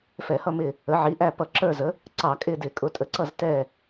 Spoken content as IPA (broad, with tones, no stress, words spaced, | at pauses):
fɛ˧˩˧hʌ˦˨mɪ˦˨ | ə˩˥ʕi˩˥ʔæ˦˨ pʌ˧˩˧ǁə˞˦˨zə˩˥ | ǀɑ˧˩˧kʼɪ˦˨dɪ˧˩˧ kʼʊ˩˥tʼə˩˥ǀʌ˦˨z tɛ˦˨